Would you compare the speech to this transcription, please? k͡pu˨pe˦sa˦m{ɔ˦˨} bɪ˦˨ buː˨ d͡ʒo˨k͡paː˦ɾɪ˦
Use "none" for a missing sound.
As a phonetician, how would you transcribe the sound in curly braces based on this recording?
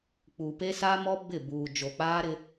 ɔ˦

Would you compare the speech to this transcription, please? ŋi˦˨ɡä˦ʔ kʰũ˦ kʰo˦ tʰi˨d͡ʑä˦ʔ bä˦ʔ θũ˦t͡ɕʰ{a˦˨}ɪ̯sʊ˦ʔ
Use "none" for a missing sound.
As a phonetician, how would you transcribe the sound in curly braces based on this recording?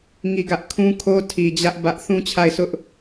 a˦˨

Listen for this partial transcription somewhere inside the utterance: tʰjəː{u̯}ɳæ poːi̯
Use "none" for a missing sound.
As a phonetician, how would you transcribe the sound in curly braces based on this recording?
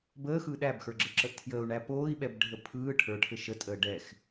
u̯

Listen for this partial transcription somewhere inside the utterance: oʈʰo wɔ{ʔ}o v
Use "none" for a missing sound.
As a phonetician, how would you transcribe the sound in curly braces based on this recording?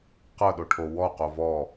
q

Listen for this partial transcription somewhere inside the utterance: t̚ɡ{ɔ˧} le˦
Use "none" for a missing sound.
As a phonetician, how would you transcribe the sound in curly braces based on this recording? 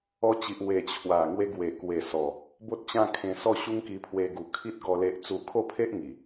ɔ˧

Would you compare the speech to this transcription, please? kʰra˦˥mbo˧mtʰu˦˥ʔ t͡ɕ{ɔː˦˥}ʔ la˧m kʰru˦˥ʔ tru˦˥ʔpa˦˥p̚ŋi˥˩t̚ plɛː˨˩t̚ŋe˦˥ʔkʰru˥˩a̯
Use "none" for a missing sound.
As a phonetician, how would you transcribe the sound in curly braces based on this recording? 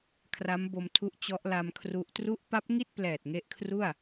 ɔ˦˥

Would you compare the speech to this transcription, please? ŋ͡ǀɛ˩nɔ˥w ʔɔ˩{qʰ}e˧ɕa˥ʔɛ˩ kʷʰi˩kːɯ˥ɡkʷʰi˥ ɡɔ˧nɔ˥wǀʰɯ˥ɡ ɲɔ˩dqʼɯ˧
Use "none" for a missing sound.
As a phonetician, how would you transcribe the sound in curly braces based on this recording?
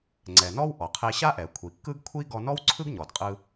qʰ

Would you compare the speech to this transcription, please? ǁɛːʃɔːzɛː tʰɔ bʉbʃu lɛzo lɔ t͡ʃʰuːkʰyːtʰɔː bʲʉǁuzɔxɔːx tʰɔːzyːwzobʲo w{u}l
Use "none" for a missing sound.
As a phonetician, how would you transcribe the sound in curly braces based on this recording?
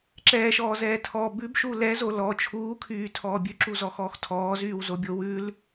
ʉ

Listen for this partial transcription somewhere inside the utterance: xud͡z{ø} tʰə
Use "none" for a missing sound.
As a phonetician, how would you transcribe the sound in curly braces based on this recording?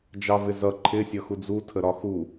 u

